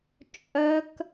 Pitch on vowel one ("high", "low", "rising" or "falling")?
high